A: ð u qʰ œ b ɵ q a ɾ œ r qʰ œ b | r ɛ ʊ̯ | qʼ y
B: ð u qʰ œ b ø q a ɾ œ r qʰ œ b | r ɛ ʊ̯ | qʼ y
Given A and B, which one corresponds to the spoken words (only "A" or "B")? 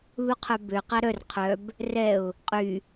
B